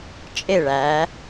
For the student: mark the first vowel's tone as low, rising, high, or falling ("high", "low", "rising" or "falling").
falling